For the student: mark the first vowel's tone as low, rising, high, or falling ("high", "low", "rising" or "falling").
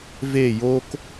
falling